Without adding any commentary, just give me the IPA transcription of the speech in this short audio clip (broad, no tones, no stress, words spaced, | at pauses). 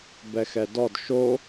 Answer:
bɛxɛdɔd ʃo